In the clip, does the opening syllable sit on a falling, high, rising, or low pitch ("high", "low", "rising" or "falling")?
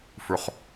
low